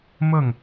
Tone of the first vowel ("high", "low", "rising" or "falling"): falling